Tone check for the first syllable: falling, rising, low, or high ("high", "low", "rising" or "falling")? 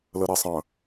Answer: low